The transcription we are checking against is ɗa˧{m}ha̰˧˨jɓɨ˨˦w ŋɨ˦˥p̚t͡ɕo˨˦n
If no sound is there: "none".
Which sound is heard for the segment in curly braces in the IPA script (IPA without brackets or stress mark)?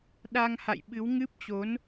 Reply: ŋ